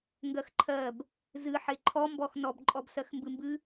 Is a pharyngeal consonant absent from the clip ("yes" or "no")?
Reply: no